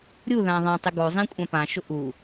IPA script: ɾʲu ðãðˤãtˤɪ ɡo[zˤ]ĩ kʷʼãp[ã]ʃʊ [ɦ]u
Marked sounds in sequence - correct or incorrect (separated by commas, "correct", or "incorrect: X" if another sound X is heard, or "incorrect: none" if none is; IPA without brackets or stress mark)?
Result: correct, correct, incorrect: ʔ